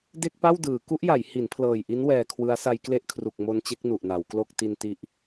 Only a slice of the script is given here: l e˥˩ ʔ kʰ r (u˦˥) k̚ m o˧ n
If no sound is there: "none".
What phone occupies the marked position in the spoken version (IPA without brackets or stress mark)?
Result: u˨˩